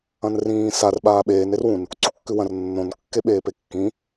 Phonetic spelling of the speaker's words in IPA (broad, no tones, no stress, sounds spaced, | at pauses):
ɐ̃ n r ĩː s a r ɓ aː ɓ eː n e r w ũ n | ǀ u kː ʉ w ɐ̃ r nː õ n kː e ɓ eː p e kː ĩ